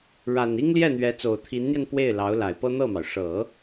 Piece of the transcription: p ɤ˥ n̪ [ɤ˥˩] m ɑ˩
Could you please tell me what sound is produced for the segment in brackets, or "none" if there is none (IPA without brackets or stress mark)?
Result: ɤ˥˩